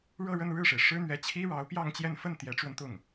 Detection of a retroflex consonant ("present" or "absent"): present